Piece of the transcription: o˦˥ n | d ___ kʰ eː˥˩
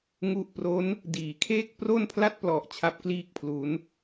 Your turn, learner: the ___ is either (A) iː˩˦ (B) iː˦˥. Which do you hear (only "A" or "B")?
A